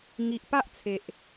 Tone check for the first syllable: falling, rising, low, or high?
low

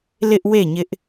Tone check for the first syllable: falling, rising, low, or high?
high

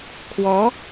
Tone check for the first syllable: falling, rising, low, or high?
rising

